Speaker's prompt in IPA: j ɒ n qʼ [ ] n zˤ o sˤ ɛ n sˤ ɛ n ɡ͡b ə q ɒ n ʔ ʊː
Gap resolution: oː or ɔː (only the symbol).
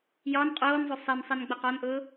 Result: oː